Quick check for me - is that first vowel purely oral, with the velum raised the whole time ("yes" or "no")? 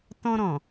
no